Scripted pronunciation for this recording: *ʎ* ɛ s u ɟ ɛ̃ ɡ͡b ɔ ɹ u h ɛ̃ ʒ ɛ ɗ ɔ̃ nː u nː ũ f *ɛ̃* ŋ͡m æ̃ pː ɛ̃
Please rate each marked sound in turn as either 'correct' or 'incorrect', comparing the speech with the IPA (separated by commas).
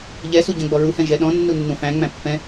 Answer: correct, incorrect